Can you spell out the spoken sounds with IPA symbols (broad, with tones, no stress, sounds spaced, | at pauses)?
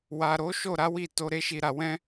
w a˨ ɾ o˨˦ ʃ o˦˨ ɾ a˨˦ w i˦˨ t o˧ ɾ e˦ ʃ i˧ ɾ a˧ w ɛ̃˦